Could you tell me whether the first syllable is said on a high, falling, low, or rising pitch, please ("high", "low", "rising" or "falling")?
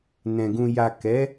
low